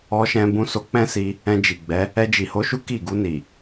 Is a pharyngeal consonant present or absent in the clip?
absent